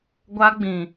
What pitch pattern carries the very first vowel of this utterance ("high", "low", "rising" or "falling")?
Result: high